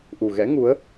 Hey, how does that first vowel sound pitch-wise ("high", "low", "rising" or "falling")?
low